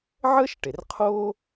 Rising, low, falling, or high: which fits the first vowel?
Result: high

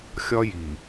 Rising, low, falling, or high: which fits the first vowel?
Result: high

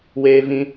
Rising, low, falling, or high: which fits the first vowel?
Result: high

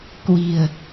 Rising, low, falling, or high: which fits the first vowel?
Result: low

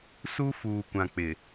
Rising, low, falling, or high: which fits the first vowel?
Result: high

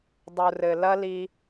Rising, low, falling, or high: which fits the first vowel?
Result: low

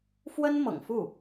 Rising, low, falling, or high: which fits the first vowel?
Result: high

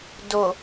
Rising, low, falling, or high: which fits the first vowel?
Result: low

